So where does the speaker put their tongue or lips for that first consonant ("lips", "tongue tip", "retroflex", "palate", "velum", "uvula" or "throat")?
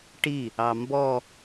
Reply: retroflex